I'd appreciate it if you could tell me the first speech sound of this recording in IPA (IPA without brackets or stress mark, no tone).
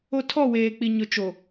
o